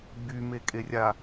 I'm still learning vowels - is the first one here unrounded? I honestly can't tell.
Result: no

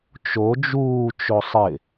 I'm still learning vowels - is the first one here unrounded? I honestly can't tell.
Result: no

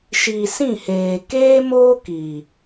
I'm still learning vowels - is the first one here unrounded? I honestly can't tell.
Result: yes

